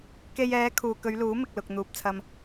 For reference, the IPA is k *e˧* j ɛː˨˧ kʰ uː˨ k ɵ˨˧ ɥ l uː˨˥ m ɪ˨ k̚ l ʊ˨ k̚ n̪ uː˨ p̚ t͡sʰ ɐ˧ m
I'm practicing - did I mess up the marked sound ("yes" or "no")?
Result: no